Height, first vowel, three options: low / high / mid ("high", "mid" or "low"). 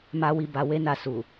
low